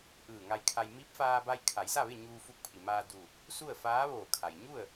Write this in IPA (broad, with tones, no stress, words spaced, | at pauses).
ʔɯː˧˩ŋa˧jkʰa˧j mi˧˥p̚faː˧ba˧j kʰa˩˧jsa˥˨ʋe˥˨ ɲuː˧fu˧k̚ pʰi˩maː˧duː˧˩k̚ | su˥˨ə̯faː˧˥ʋoː˧˩kʰa˩j ɲu˥˨ə̯